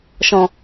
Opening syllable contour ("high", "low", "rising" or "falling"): low